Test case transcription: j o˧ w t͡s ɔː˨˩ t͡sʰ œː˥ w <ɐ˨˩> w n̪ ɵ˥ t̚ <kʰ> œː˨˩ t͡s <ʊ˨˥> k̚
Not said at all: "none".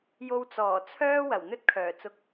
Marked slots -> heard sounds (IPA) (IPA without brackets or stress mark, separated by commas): ɐ˨˩, kʰ, ʊ˧